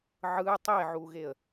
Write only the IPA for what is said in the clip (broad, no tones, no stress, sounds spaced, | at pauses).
ʕ ɯ tˤ e ʕ u ɣ e ə̯